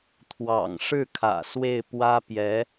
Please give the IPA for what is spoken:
t̪ʰ w ɑ̰˨˩ ŋ ʂ ɻ̩˥˩ kʰ ä̰˨˩ s w e˥˩ ɪ̯ p w ä˥ p j ɛ˧˥

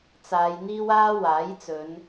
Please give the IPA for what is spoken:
t͡s aː˨˧ j n̪ iː˥ w aː˥ w aː˨˥ j t͡s ɵ˨˧ n

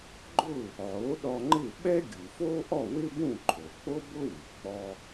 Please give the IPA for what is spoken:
ɡ͡ǃ ʊ˥˩ | ʕ o˩˥ ɗ ɔ˧ ŋ͡ǃ ɪ˥˩ ɓ ɛ˥ ɡʲ u˩ f o˥ ʔ ɔ˥˩ w ɪ˥ b ũ˥˩ ǃʰ o˩ k͡p o˥ b ʊ˥ w u˩ k͡p ɔ˧

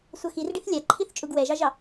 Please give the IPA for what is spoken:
sʷ ʌ x i r ɖ i θ lʲ a ǃʰ i θ t͡ʃʼ u ɡ w ɛ ʒ ɑ ʒ ɑ

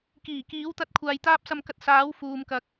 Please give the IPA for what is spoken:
k iː˨˩ k iː˨˥ w t̪ ɐ˧ t̚ kʷʰ aː˨ j t̪ aː˥ p̚ s ɐ˧ m k ɐ˧ t̚ s aː˨˥ w f uː˨ m k ɐ˨ k̚

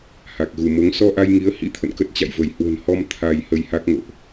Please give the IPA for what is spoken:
h a˨˩ k̚ ɣ u˧˩ m o˨˦ ŋ s ɔ˧ ʔ a˧ j ŋ i˨˦ ə̯ h ḭ˧˥ t̪ʰ ə̰˧˨ n k ə˦˥ t̚ t͡ɕ a̰˧˨ j v ə˧˩ j h w ə̤˨˩ n h ɔ˧ m t̪ʰ a˧ j h ə˧ j h a˦˥ k̚ ŋ o̰˧˨ ʔ

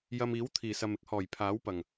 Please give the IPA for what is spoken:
j ɐ˧ m iː˨˥ w t̪ʰ iː˨˩ s ɐ˨ m ɪ˥ k̚ h ɔː˨˩ j pʰ aː˨˥ w p ɐ˨˩ ŋ

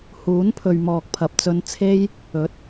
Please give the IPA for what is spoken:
h uː˨˥ n pʰ ɵ˨ ɥ m ɔː˨ k̚ pʰ ɐ˨ p̚ t͡s ɵ˧ n t͡sʰ e˥ j | ɵ˨˥ t̚

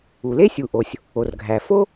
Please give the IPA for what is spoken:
u˩ l e˥ sʲ u˩ ʔ o˩ sʲ | o˩ r ɡʱ æ˩ f o˥

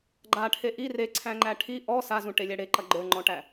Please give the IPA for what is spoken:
ɡ͡ǃ a ʈʰ e ʔ i r e ǀʰ æ̃ ŋ͡ǃ æ ʈʰ i ʔ ɔ s a z ũ ʈ e lʲ æ ɽ e ǃ ɐ ɡ͡ǃ ə˞ ŋ͡ǃ ɔ̃ ʈ æ

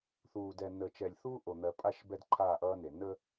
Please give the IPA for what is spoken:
θ uː˨ d ɛ˨ n əː˨ t͡ʃ ɛ˨ lʲ θ uː˦ ʔ o˨ n̪ ɜ˨ pʼ a˦˨ ʃ b ɛ˦ d ǃʰ aː˦˨ ʔ ʌː˦ n e˨ n ə˦

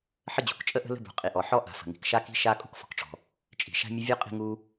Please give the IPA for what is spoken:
ħ ə˥ d͡ʑ ṳ˩ k t͡ʃʼ ə˥ ʔ ə̤˥ l ə̤˥ b ṳ˩ qʼ i˩ ʔ ɔ˩ ħ ɔ˥ ʔ a̤˩ f ə̤˩ ŋ i̤˩ k ʃ a˥ k i̤˥ ʃ a˥ kʼ ṳ˥ k f ɔ̤˩ k ʈ͡ʂ ɔ̤˩ | t͡ʃʼ i̤˩ ʃ a̤˥ mʲ ə˥ vʲ u˥ qʼ i̤˥ ŋ u˥

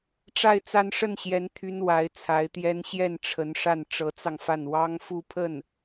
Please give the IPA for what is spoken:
ʈ͡ʂ a˥˧ ɪ̯ t͡s a˥˧ n ʂ ə˥˩ n ɕ j ɛ˧˥ n t̪ʰ y˥ n w a˧˥ ɪ̯ t͡sʰ a˧˥ ɪ̯ t̪ j ɛ˥ n ɕ j ɛ˥˩ n ʈ͡ʂʰ ə˧˥ n ʂ a˥˩ n ʈ͡ʂ ɤ˧˥ t͡s ɑ˧ ŋ f a˥˩ n w ɑ˥ ŋ f u˥˧ pʰ ə˥˩ n

